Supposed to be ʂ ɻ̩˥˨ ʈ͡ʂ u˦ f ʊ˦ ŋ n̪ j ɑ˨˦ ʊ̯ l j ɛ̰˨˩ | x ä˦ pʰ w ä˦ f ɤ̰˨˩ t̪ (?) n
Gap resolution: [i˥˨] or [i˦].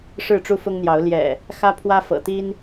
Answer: i˦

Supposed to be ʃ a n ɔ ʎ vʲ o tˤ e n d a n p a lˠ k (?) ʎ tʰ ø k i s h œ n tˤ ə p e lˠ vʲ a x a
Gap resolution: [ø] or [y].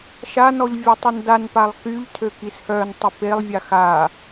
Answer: y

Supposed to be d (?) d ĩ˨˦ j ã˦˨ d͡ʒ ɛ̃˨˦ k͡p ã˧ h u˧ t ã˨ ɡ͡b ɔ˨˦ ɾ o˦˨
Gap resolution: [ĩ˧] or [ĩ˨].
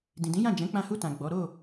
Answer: ĩ˨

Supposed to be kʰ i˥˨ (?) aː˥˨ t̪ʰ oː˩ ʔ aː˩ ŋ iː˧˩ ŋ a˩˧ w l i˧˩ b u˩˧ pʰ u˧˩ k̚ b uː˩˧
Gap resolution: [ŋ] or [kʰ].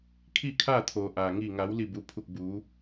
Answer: kʰ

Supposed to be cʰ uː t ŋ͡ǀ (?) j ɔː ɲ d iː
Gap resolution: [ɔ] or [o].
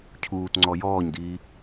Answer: ɔ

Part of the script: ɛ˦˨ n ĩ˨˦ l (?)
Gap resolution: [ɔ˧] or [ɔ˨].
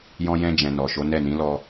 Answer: ɔ˧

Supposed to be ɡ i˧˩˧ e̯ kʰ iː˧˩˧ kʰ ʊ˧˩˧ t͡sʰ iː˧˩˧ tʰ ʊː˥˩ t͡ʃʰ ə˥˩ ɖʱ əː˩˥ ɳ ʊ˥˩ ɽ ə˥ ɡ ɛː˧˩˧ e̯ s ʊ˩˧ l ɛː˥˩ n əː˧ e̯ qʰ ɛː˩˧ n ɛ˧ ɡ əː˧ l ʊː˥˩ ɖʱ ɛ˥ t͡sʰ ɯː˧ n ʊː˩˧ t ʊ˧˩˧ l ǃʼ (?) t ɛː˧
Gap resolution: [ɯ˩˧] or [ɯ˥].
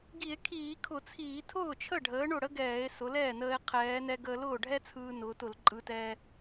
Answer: ɯ˩˧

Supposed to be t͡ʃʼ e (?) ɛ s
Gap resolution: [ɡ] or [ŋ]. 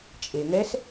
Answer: ŋ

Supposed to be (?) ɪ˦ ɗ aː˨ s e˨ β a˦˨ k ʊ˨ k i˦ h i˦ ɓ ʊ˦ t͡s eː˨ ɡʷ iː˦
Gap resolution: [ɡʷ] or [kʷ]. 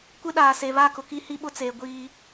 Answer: kʷ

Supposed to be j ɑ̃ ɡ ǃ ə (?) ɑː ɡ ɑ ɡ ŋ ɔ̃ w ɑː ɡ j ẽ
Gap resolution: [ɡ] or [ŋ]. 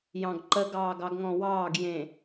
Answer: ɡ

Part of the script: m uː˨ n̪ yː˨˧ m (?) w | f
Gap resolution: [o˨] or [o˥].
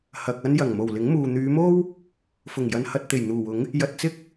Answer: o˥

